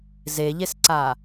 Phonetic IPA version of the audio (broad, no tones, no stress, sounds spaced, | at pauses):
z e ʎ e s ǀ a